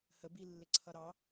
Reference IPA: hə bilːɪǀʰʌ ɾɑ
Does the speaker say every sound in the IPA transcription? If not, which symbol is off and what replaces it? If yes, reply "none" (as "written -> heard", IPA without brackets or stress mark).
none